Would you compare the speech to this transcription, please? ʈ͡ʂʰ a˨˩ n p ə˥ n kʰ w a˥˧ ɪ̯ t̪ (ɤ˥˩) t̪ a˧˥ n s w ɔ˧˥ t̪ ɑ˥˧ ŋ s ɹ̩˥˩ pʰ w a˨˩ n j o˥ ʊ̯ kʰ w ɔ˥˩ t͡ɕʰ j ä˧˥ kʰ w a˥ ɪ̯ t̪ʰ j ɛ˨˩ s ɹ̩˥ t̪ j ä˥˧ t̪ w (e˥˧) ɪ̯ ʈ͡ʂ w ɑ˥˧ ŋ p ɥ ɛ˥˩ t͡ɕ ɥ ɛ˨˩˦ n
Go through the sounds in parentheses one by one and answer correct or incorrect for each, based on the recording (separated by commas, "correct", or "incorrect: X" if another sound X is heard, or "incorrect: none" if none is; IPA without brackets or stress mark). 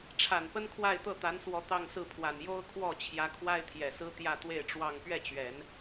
correct, correct